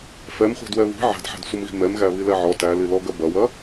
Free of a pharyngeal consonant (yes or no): no